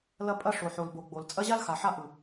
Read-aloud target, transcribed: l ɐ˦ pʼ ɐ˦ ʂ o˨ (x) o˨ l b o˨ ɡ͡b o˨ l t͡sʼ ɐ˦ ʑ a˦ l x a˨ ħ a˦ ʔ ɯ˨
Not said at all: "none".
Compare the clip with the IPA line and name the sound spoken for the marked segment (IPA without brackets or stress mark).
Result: ħ